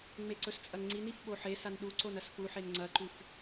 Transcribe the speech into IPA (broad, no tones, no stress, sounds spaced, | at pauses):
ŋ͡m e ǀ ɵ s t͡sʼ ɐ ŋ ŋ͡ǀ i n i f ɓ o ħ e s a n ɗ u ǀ o n ɐ s f u ħ e n ŋ͡ǀ ɐ ǃ ʉ f